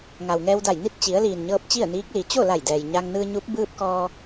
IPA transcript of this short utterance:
ŋ a˩ w ŋ ɛː˧ w d a˧˩ j n i˥˨ t̚ t͡ɕ i˩˧ ə̯ l iː˩ n ɲ ɤː˧ p̚ t͡ɕ i˥˨ ə̯ n iː˧˥ k̚ l i˩˧ t͡ɕ o˥˨ l a˧˩ j d ɛː˩ j ɲ a˧ ŋ n ɯː˧ ɲ u˧˥ p̚ b ɯː˧ p̚ k ɔː˧

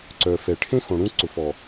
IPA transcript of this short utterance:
ǀ œ˨ f ɛ˨ ʈʰ ẽ˦ x õ˨ ɽ ũ˦ ǀ ʊ˨ f ɔ˨

